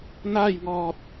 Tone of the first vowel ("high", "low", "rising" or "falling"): falling